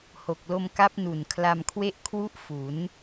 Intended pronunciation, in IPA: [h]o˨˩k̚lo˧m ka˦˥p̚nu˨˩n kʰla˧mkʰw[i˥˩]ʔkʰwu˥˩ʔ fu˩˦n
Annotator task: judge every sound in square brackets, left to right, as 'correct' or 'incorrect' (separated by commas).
correct, incorrect